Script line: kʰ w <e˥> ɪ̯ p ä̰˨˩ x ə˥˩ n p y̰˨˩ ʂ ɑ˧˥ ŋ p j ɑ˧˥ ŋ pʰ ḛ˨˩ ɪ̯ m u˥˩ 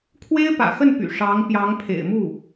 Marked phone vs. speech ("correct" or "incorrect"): correct